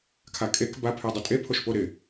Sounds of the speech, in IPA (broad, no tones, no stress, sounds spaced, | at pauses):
kʰ a kʼ e k b a pʰ e dˤ ɪ tʼ e pʰ o ʃ p o ɾ ɪ